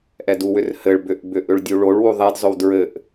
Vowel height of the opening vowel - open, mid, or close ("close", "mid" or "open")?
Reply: mid